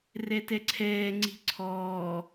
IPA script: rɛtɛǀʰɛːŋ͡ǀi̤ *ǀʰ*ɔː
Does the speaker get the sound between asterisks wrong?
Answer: no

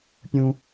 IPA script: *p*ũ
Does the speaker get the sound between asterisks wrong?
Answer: yes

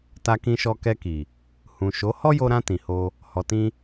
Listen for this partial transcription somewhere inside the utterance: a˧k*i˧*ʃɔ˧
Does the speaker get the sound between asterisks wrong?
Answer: yes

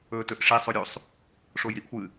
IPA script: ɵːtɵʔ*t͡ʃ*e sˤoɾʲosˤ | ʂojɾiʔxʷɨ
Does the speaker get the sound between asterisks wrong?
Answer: yes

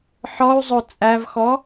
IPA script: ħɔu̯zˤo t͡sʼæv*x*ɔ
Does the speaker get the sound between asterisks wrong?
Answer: no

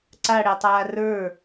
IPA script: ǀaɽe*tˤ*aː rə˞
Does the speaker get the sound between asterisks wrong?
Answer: no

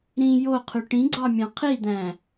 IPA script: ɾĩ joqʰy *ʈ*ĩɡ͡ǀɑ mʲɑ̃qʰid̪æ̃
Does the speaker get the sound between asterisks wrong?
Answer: no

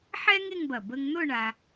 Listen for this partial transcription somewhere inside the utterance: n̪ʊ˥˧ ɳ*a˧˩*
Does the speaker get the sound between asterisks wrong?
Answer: yes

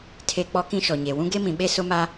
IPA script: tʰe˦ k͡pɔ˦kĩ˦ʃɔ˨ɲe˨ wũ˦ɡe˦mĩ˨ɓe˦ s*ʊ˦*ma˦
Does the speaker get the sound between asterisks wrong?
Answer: no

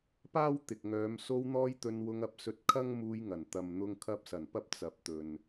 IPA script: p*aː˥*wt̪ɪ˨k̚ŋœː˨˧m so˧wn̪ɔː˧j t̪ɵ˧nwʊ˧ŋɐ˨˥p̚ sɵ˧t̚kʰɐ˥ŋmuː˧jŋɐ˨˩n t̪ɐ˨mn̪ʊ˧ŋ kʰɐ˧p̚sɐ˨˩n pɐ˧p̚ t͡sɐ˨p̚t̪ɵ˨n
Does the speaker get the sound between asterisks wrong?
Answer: no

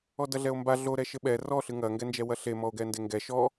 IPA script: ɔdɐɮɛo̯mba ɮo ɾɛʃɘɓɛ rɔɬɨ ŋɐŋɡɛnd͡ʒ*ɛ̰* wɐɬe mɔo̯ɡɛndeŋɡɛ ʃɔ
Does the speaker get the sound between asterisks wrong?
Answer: yes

